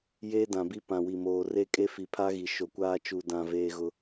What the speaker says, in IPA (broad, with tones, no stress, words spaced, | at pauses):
jeː˦dã˨bi˦ pã˨wi˨moː˨re˦ kʼe˦fi˨ pʰa˦ɣi˨ ʃo˨kʷaː˦ t͡ʃu˨dã˨ veː˦ɣʊ˦